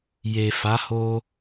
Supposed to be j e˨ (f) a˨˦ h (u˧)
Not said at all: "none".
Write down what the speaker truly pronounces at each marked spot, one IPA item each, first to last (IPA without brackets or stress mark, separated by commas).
f, o˧